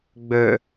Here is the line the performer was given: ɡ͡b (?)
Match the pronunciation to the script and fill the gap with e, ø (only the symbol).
ø